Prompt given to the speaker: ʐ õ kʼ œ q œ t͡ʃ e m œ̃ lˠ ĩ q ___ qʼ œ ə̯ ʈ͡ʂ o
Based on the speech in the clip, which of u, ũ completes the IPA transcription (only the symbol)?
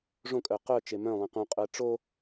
ũ